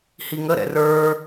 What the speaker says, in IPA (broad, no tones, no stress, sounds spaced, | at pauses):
h i ŋ ə ɾ ɛ̰ r ə˞